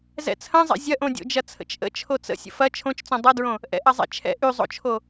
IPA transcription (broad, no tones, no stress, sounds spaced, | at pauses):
z ɛ̰ t͡sʰ ɐ̃ zˤ ɛ̰ zʲ ɐ ʔ õ dʲ o̰ d͡ʒ ɐ t͡sʰ ə̰ t͡ʃ ʔ ə̰ t͡ʃʰ o t͡s ə̰ sʲ ə̰ f ɐ t͡ʃʰ õ t͡ʃ t͡s õ dˤ ɐ d ɹ õ | ʔ ɛ̰ ʔ ɐ zˤ ɛ̰ t͡ʃʰ ɛ̰ ʔ y zˤ o̰ t͡ʃʰ o